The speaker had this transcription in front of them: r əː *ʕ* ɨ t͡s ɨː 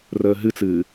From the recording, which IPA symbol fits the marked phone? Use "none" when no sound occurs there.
ɦ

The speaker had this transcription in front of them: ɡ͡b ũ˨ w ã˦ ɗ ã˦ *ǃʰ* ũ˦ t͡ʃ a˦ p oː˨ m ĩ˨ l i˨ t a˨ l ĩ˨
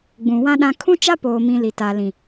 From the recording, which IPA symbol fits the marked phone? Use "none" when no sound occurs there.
kʰ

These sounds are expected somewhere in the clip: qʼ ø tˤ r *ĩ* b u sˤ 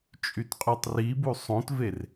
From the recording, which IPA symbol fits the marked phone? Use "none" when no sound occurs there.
i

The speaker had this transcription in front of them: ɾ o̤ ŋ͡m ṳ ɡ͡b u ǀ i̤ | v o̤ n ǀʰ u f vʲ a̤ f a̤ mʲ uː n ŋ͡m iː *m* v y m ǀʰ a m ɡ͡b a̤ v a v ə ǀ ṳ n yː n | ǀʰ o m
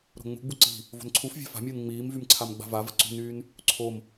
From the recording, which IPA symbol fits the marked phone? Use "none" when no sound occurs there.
m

